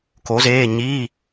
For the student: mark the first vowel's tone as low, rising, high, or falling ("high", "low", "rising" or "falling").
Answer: rising